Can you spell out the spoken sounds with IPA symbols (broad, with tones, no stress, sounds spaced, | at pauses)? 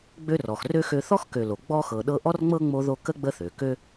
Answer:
ɡ͡b ø˥ r ɔ˨ x r ø˥ x ø˦ θ ɔ˥ x k ø˨ l o˩ ɡ͡b ɔ˥ x ɤ˨ ɗ ɤ˦ ʔ ɔ˥ r ŋ͡m ɤ˥ ŋ͡m o˦ ð o˦ k ə˥ ɡ͡b ə˦ θ ø˩ k ø˦